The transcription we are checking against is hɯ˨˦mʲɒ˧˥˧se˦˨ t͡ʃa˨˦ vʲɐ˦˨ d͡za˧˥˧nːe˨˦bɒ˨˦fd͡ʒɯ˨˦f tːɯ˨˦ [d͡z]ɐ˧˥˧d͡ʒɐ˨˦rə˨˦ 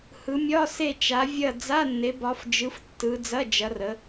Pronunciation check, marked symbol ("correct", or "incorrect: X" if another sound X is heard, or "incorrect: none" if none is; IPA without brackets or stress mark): correct